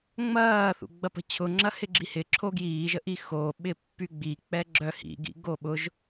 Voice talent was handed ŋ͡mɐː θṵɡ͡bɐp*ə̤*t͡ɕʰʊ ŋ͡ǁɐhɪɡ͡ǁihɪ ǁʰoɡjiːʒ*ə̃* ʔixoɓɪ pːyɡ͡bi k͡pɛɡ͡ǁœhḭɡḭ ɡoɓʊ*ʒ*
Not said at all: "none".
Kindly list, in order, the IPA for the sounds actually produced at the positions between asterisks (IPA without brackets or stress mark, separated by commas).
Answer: ə̤, ə, ʒ